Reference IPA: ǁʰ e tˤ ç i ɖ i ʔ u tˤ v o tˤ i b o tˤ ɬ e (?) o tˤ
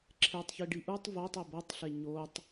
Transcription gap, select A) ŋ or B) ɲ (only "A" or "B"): B